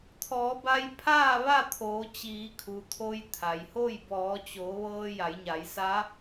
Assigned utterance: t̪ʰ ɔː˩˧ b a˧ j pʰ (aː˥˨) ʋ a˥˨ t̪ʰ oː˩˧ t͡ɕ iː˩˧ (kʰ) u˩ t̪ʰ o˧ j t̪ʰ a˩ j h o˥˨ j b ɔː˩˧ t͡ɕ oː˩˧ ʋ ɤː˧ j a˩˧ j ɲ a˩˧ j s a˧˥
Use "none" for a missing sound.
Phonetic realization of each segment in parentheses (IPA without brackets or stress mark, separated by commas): aː˥˨, kʰ